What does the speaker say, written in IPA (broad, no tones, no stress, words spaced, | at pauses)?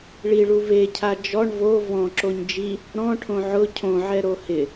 ɭiɭu ve cʰad͡ʒɔɳ vo vɔ̃ǁoɲ d͡ʒi | ɾɔ̃ʈʰõ ʕʊ cʰõʕɛ ɾohɪ